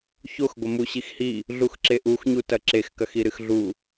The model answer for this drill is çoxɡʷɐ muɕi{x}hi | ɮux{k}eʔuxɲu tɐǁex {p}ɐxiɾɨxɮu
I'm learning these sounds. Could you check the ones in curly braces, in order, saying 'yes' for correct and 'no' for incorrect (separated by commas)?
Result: yes, no, no